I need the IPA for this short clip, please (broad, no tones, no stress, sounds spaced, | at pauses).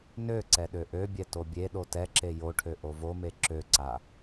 n ø ǀ ɛ ɗ ø ʔ ø bʲ ɛ t o bʲ e ɗ o t ɛ ǁ e j o ʈʰ ø ʔ o v o m e ǁ ø ǀ a